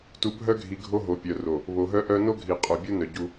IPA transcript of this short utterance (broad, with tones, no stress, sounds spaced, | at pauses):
t u˨ bʱ œ˦ ɡʱ i˨ ɡʱ o˦ ɦ o˨ pʲ œ˨ r o˨ | β o˨ ɦ œ˦ ʔ œ˦ n o˦ ɡʱ i˨ qʼ œ˨ bʲ u˦ n œ˨ ɟ u˦